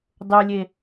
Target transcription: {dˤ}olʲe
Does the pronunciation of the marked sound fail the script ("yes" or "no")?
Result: no